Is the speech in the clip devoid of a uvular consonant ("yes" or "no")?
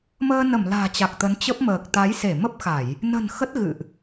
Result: yes